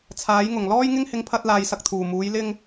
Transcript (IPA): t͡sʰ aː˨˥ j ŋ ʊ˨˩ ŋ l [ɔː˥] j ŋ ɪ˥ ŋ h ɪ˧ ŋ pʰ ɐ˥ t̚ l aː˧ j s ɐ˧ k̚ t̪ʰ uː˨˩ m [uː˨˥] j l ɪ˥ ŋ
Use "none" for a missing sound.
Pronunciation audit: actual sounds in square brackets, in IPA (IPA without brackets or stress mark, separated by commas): ɔː˥, uː˨˥